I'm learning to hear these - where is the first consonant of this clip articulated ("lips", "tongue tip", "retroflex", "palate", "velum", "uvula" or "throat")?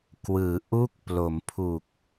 velum